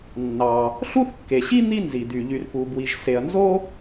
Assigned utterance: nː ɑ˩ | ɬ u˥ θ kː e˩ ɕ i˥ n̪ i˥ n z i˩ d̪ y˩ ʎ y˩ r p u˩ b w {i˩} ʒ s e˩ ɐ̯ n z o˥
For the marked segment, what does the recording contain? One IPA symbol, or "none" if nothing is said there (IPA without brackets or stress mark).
i˩